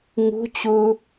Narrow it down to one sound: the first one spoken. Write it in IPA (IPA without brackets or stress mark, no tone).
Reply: ŋ